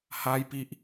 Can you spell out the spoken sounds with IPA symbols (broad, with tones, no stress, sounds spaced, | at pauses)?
h a˧ j p i˨ ʔ